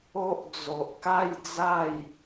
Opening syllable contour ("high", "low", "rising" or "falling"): high